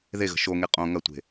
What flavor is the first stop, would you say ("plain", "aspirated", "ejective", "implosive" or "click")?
ejective